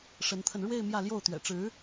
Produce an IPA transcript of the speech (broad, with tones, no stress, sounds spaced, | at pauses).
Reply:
ʂ ə˧˥ n t̪ʰ ə˧ n ɻ w e˥˧ ɪ̯ m j ä˥˧ l j o˥˩ ʊ̯ t̪ ɥ ɛ̰˨˩ ʈ͡ʂ ɻ̩˧˥